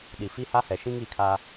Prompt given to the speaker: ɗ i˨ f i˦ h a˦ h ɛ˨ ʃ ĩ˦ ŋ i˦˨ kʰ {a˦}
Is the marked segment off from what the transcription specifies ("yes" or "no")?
no